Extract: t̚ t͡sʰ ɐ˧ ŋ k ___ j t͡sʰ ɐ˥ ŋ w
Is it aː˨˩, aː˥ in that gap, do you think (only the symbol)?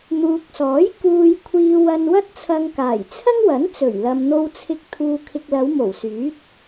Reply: aː˨˩